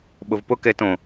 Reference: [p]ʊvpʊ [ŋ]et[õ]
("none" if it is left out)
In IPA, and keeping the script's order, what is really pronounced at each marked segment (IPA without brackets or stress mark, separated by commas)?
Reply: ɓ, k, õ